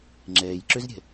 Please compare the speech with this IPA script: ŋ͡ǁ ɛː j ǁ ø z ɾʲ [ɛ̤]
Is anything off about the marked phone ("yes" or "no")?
no